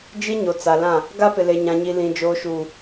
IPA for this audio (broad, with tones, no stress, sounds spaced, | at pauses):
d͡ʒ i˦ ɲ o˨ t͡s a˨ l ã˦˨ | ɡ a˦ p ɪ˨ l e˨ ɲ ã˨ ɲ i˨ l ĩ˨ d͡ʒ oː˨ ʃ uː˨